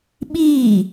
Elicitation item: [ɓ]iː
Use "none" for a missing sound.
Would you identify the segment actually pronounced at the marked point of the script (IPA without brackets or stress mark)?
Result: ɓ